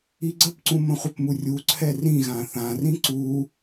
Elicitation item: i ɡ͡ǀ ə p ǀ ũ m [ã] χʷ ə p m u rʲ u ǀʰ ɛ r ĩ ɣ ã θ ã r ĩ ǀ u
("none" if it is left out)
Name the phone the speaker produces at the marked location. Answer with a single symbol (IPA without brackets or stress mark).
ə̃